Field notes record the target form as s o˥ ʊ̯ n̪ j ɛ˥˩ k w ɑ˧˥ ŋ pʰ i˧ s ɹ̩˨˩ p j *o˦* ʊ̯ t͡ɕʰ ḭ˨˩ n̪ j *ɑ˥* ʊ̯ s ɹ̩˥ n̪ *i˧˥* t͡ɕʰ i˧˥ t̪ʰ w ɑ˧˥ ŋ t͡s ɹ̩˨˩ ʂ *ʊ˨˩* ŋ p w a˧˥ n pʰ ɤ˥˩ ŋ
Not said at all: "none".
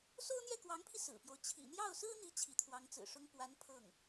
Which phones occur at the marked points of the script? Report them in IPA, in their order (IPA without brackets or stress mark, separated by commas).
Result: o˦, ɑ˥˩, i˧˥, ʊ˥